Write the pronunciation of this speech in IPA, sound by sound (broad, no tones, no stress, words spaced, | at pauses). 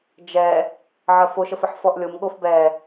d͡ʒɛ | ʕɜfoʃ əfəħfɔʔlʲom ɠofbɛ